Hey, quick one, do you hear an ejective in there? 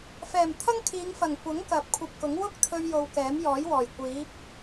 no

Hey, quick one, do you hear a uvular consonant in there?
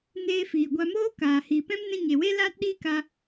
no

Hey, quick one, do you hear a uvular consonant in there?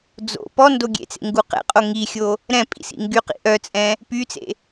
yes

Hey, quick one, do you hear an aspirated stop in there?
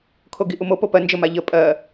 yes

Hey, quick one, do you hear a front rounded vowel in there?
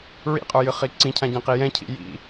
no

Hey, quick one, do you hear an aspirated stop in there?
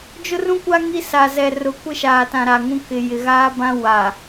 no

